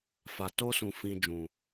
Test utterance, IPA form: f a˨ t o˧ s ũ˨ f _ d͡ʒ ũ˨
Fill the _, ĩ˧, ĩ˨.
ĩ˨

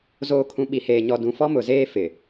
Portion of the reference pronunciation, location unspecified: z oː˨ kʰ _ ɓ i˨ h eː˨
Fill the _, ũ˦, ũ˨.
ũ˨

